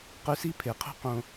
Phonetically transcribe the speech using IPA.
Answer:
q ʉ˧ s i˦ pʰ e˨ qʰ ṳ˦ q õ˧

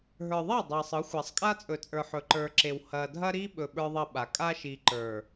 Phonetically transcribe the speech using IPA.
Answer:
ɦ ə˞˨ ðˤ a˦˨ dˤ a˨ sˤ ɯ˨˦ xʷ a˨ sˤ kʼ a˦ t͡sʼ ɵ˨ t͡sʼ ə˞˨ ħ ɵ˨ ǃ ə˞˨ ǁ e˨ w h ɐ˨ dʱ ɐ˦ ɾ i˦ ɓ ɵ˨ ɓ ə˞˦ ðˤ ɐ˦ ɓ a˨ kʼ a˦ ʃ i˨ ǃ ə˞˨

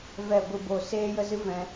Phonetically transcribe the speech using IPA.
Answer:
v ɛ˨ ɡʷ ɨ˨ b o˨ s eː˦ j ə˦ z ɨ˦ v ɛ̃˧

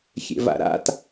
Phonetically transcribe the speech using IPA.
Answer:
xʲ ḛ v a̰ ɾ a̰ t

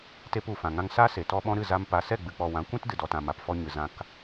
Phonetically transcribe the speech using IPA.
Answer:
t e˧ p u˨ f ã˨ ŋ ã˧ ŋ s a˦ s e˨ t ɔ˧ ɓ ɔ̃˧ ɾ ɨ˦˨ z a˧ m p a˧ s ɛ˦˨ ɡ͡b ɨ˨ k͡p ɔ˨ w ã˨˦ kʷ ĩ˦ t d ɨ˨ d ɔ˨ t ã˨ m a˨ p f ɔ˧ ɲ ɨ˨ z ã˧ k

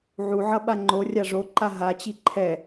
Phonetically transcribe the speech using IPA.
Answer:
ʕ u ʕ ʌ ɓ a ŋ͡ǃ o rʲ a ʐ o ǃ a ɦ a t͡ɕ i ǃʰ ɛ

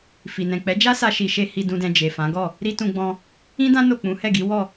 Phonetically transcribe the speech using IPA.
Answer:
f i˨ n ɛ̃˨ k͡p ɛ˨˦ d͡ʒ a˦ s a˧ ʃ i˧ ʃ e˦ h i˧ d ũ˧ d ɛ̃˧ d͡ʒ e˨ f ã˨˦ ɡ ɔ˦˨ | ɾ i˦ t ũ˧ ɡ͡b ɔ̃˧ | ĩ˦ d ã˦ n o˦˨ k͡p ũ˨˦ h ɛ˦˨ ɡ i˨˦ w ɔ˦˨

